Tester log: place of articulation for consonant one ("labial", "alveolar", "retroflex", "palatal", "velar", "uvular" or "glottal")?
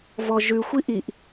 labial